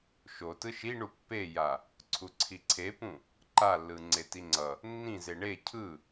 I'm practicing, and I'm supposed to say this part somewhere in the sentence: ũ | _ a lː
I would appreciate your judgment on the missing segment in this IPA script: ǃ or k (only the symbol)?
ǃ